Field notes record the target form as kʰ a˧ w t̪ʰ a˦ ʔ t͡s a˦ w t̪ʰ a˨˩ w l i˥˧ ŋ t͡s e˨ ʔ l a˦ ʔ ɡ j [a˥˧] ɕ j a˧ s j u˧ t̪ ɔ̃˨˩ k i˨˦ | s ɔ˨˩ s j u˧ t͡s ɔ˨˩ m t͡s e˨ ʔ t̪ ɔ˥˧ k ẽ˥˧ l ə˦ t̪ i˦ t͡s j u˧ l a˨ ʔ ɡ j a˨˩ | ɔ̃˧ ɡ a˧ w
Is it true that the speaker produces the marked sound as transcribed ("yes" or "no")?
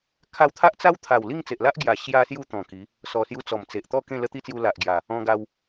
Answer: no